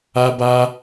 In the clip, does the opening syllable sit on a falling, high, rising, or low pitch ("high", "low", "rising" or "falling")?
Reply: high